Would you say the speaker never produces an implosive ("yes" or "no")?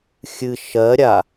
yes